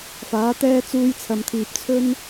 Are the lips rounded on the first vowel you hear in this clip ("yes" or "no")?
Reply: no